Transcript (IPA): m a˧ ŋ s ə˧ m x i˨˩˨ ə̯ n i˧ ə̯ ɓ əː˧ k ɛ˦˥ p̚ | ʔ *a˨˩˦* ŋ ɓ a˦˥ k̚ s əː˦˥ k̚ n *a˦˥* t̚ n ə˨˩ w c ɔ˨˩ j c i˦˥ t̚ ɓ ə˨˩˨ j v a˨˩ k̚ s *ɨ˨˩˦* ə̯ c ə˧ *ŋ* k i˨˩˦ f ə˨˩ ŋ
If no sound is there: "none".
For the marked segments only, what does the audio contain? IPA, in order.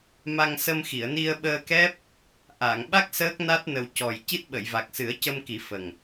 a˨˩˨, a˦˥, ɨ˨˩˦, m

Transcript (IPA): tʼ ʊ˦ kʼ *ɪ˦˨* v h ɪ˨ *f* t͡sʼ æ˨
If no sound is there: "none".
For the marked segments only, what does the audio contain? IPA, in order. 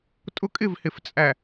ɪ˦˨, f

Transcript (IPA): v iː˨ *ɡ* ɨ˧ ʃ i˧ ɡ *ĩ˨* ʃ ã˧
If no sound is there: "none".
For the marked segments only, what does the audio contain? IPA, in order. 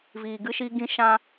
ɡ, ĩ˧

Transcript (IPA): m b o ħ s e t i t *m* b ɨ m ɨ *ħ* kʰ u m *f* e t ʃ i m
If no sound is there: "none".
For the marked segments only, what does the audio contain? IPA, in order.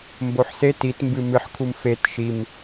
m, ħ, f

